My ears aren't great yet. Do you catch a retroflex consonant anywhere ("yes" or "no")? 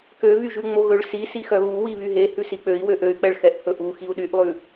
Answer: yes